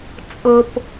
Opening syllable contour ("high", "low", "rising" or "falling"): high